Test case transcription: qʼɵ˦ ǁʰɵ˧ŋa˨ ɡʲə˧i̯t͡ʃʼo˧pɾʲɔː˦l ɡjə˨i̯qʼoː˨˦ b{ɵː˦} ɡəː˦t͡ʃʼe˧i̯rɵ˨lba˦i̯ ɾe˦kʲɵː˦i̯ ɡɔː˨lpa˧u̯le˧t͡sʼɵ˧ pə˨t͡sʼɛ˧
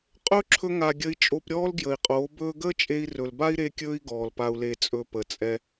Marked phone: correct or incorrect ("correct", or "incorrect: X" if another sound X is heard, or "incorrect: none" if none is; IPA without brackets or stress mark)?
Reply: correct